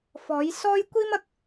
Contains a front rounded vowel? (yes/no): no